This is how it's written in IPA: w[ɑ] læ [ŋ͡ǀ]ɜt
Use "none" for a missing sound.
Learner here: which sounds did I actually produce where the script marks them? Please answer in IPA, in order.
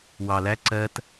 ɑ, ǀ

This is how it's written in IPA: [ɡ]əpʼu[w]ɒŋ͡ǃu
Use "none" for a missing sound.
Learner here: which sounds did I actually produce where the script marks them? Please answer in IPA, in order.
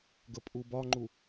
ɡ, b

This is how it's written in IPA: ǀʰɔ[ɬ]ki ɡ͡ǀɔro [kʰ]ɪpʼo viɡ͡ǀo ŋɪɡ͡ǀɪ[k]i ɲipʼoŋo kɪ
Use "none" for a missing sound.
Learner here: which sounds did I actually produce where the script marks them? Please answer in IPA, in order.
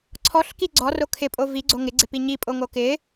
ɬ, kʰ, p

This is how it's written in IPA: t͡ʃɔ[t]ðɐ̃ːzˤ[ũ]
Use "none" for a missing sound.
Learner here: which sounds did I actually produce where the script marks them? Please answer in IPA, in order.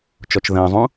t͡ʃ, ũ

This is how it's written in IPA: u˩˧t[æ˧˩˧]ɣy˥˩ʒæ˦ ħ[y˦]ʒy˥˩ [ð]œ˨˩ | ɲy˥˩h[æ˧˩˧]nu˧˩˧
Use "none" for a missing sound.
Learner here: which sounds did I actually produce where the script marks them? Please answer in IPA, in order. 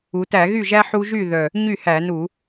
æ˧˩˧, u˦, ð, æ˧˩˧

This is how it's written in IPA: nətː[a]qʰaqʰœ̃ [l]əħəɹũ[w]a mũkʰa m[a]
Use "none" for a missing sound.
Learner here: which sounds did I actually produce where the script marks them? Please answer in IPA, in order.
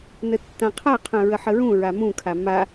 ã, ɹ, ɹ, a

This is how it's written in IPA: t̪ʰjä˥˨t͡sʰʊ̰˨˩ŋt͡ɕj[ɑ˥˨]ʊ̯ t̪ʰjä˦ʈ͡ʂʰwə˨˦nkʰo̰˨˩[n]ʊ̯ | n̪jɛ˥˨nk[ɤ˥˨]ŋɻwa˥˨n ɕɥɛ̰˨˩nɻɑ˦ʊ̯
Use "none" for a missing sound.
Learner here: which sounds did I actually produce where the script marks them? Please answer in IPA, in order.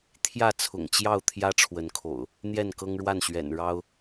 ɑ˥˨, none, ɤ˦

